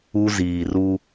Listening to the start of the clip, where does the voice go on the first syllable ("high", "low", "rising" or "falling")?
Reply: high